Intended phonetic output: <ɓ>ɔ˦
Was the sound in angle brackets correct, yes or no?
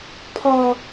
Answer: no